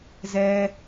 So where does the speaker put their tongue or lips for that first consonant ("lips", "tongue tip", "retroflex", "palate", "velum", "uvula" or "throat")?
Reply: tongue tip